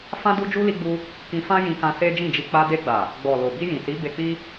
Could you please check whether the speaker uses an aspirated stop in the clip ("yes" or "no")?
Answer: no